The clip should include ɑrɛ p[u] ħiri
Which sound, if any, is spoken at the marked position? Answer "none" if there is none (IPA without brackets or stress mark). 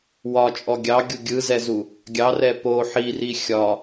o